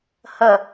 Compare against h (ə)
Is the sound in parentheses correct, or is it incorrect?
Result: correct